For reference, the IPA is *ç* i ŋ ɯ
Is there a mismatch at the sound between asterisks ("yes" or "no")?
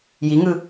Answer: yes